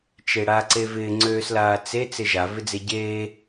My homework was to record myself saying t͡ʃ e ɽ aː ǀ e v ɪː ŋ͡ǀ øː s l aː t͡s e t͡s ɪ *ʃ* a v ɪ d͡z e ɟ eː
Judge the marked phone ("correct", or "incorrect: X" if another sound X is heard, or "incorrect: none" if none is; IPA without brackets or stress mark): incorrect: ʒ